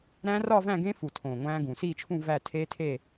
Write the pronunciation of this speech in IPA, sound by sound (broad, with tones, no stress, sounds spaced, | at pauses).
ɾ æ̃˦˥ r ɒ˥˧ v æ̃˥˧ ɡ ẽ˦˥ f u˨˩ tʰ õ˨˩ ŋʷ æ̃˦˥ ɡ ũ˨˩ s i˥˧ t͡ʃʰ ũ˥˧ v æ˥˧ tʰ e˦˥ tʰ e˥˧